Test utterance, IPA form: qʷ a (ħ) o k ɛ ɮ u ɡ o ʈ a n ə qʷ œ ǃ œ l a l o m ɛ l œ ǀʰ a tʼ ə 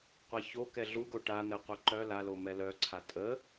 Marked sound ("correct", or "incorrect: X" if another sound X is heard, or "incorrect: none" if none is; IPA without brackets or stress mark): incorrect: ç